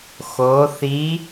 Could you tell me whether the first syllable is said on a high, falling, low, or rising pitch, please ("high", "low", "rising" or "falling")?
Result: rising